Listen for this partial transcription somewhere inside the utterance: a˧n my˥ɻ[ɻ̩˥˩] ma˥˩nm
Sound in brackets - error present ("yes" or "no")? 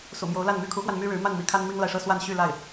yes